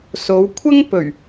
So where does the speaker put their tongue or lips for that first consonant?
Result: tongue tip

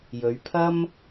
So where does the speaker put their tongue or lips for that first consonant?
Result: palate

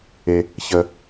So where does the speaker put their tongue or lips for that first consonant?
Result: palate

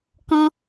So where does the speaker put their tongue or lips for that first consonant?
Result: velum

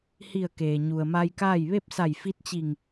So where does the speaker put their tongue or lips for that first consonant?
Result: throat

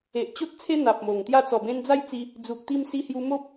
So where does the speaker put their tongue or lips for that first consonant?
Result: throat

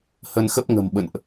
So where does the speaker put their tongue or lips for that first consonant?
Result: throat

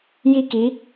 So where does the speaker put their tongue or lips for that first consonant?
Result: palate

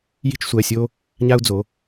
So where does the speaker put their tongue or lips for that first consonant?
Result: palate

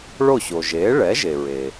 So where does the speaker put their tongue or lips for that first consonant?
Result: retroflex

